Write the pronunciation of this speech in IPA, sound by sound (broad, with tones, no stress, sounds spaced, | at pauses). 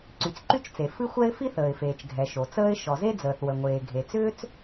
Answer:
ǀ y˩ t͡s ǃ y˥ t͡ʃ t͡s e˩ f ɨ˥ xʷ ɛ˥ ɪ̯ f i˥ θ əː˩ ɪ̯ f eː˩ t͡ʃ ɡʱ ɛ˩ ʃ o˩ t͡s əː˥ ɪ̯ ʃ ɔ˩ z e˥ d͡z əː˩ θ w ə˩ ŋʷ eː˩ ɡʱ e˩ t͡s ʏː˥ t͡s